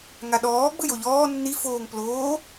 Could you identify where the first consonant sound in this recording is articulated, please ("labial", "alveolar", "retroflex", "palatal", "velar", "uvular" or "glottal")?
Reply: velar